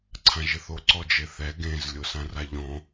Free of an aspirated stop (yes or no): no